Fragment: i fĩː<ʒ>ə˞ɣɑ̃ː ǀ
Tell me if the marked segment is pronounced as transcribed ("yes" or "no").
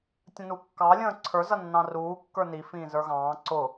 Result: no